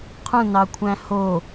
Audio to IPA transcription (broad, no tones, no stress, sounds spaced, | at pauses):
qʰ ũ n ɑ kʷʰ æ̃ h o